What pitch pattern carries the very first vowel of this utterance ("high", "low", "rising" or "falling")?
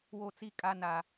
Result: high